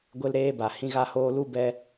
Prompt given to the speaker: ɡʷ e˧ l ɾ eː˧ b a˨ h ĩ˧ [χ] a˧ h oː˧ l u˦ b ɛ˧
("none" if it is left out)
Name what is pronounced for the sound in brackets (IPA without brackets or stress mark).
ɣ